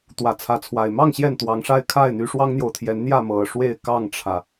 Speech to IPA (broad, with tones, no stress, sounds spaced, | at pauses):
t̪ w ä˨˦ t͡sʰ ä˨˦ t͡sʰ w a˨˩ ɪ̯ m ɑ˥˨ ŋ ɕ j ɛ˥˨ n t̪ w ɑ˨˦ ŋ ʂ a˦ ɪ̯ kʰ a˥˨ ɪ̯ n̪ y˨˦ ʂ w ɑ˦ ŋ n̪ j o˨ ʊ̯ t̪ʰ j ɛ˨˦ n n̪ j ä˥˨ m ɤ˨˩ ʂ w e˥˨ ɪ̯ k ɑ˥˨ ŋ ʈ͡ʂʰ ä˩